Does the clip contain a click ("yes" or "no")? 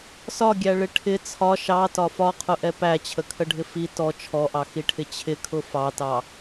no